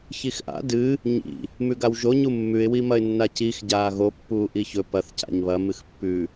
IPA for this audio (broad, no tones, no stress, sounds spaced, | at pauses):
ç i x ʔ a̰ d ɨ | ɲ ḭ | m ʉ ɡ a w ʒ o ɲ u mː ʉ ɪ̯ w i m ɐ ɪ̯ nː a c i x ɟ aː ɣ o pː uː ʔ i ç ɵ p ɐ θ c a̰ ɲ β ɐ m ɨ x pː ʉ